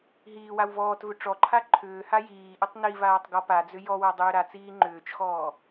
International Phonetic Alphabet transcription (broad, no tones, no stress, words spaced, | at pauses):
ɦiːwaw vɔːtvʏ ʈ͡ʂɔǃʰa ǃʰʏː hajiːʔʏtˤ nivaːtˤ ɡɔpad͡zʏ jɔwa dˤʏːɾat͡siː ŋ͡ǃʏːt͡ʃxɔː